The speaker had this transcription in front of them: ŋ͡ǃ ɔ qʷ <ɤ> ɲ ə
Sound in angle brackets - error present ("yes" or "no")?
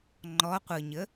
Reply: no